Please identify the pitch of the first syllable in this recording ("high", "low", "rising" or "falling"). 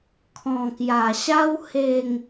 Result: low